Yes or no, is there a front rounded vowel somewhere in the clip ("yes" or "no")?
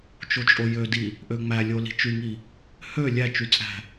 yes